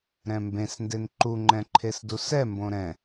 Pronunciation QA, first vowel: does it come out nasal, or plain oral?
nasal